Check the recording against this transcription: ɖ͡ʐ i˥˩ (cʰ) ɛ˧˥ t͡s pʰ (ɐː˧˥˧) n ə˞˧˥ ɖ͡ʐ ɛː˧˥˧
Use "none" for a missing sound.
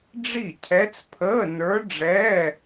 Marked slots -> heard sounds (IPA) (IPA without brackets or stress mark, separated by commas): cʰ, əː˧˥˧